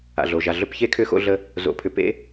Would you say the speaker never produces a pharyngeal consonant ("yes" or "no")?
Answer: yes